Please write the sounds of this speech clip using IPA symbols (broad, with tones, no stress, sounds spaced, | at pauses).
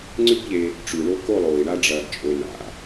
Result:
ŋ͡ǀ ʉ˦ b ʎ e˧ | ʈ͡ʂ ʉ˨ ɳ o˦ k o˦˨ lˠ oː˨ i̯ ɳ a˦ ɖ͡ʐ ɐː˧ ɡ t͡ʃʼ ɵ˧ n a̰˧